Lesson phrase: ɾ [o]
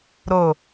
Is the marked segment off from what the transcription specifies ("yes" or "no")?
no